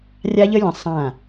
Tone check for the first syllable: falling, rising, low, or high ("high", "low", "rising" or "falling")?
high